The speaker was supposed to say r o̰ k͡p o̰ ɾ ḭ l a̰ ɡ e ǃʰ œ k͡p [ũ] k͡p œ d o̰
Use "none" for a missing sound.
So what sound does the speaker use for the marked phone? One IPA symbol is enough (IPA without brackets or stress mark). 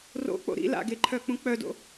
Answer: ũ